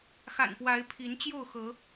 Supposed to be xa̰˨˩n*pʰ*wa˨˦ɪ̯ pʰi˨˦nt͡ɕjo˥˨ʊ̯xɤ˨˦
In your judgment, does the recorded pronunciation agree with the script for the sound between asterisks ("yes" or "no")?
no